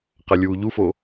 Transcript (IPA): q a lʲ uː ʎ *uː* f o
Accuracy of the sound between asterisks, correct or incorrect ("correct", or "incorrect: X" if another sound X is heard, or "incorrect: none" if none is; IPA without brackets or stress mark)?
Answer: incorrect: u